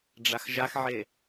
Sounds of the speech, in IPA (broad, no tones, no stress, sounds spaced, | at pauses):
ɖ͡ʐ a x ʒ a x ʕ e